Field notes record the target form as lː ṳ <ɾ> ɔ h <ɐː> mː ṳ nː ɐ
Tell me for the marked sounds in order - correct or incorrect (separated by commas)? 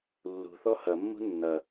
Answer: incorrect, incorrect